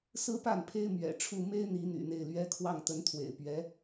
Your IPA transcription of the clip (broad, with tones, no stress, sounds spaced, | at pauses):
s ɹ̩˥ p a˥˩ n pʰ e˥ ɪ̯ m ɥ ɛ̰˨˩ ʈ͡ʂʰ u˥˩ m e˥ ɪ̯ n̪ i˧˥ n̪ y̰˨˩ n̪ e˥˩ ɪ̯ l ɥ ɛ˧˥ kʰ w ɑ˥˩ ŋ t̪ ə˧˥ n t̪ʰ w ḛ˨˩ ɪ̯ p ɥ ɛ˧˥